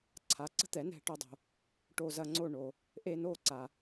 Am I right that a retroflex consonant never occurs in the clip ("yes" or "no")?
no